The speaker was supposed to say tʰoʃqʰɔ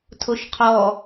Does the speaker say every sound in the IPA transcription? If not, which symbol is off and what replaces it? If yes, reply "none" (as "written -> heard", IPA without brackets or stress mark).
none